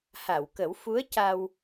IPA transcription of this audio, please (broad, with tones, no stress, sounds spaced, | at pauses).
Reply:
h a˨˩˨ w k ə˨˩˦ w f u˧˥ ə̯ c a˧ w